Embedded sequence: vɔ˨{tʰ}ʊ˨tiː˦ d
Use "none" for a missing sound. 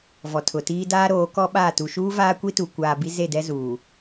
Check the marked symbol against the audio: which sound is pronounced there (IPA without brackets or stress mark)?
tʰ